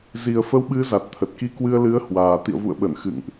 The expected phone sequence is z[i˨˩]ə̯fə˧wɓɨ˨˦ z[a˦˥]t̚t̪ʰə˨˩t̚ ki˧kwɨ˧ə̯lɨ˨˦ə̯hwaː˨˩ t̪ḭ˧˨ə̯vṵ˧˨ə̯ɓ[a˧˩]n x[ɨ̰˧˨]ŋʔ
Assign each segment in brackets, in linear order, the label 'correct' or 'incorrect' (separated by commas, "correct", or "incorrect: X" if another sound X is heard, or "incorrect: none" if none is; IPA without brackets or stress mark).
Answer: correct, incorrect: a˨˩, incorrect: ə˧˩, correct